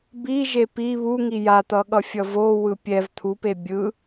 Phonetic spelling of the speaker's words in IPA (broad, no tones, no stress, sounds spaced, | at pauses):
b i ʒ e p i β u ŋ i j a t̪ ʌ ɠ ʌ fʲ ʌ v o w ɯ pʲ ɛ v t̪ʰ u p e bʲ ɯ